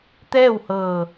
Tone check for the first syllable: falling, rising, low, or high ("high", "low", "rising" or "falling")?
falling